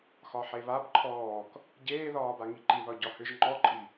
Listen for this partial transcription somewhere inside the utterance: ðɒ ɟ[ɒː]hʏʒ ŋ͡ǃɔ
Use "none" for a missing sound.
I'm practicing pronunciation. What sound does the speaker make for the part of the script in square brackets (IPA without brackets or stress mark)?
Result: ɒ